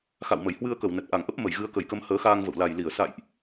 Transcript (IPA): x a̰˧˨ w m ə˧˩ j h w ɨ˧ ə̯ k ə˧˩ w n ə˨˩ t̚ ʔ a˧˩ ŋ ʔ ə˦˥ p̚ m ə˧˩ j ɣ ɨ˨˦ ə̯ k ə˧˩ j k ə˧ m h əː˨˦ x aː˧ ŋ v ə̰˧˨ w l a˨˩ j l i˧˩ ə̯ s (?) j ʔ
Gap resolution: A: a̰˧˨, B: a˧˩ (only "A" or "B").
A